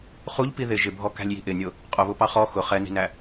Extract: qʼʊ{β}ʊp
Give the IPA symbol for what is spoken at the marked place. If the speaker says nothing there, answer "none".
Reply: β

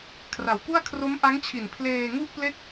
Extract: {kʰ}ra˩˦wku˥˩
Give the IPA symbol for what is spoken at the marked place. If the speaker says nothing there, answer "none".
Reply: kʰ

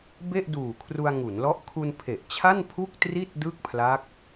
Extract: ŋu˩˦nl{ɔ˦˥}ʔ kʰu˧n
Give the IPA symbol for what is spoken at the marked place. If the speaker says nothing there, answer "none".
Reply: ɔ˦˥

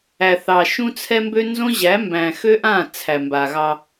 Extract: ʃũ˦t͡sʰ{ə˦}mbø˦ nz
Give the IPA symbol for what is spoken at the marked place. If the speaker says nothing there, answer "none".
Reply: ɛ˦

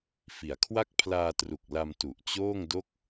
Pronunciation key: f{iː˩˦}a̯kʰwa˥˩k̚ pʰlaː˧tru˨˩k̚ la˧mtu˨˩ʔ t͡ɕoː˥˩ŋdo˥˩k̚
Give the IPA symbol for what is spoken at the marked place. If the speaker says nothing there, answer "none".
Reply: i˩˦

